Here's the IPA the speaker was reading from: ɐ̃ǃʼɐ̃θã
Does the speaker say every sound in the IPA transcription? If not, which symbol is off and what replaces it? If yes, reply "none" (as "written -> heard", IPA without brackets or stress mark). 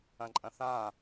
none